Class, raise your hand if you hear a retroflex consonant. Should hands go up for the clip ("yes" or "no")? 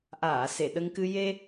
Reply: no